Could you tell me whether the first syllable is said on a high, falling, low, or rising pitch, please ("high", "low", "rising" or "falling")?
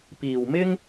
low